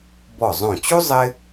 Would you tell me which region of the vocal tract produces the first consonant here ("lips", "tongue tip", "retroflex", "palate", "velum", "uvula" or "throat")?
lips